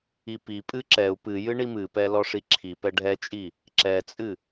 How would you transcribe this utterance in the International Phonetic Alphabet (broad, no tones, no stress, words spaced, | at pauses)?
ipipʼɨ ǁɛu̯ pɨ jɨɳimɨpɛ lɔʂiǁʰipɛ ɖʱɛt͡ʃʼi | ǁɛt͡sʼɨ